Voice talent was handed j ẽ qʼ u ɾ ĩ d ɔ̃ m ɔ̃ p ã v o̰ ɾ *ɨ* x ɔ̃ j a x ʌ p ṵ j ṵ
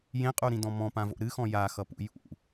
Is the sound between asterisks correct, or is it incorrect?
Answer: correct